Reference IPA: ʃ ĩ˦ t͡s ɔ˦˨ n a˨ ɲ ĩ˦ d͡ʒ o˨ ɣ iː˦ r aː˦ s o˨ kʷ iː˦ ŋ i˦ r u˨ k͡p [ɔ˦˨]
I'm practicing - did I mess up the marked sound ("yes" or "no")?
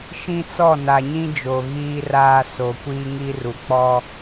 yes